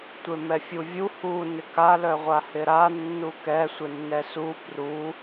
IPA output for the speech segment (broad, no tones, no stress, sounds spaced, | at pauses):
tʷ e m ɛ fʲ u vʲ u h u n ɪ k a l œ ʁʷ a h ɪ ɾ a nː u k ɛ sʷ ɪ nː ɛ s u p r u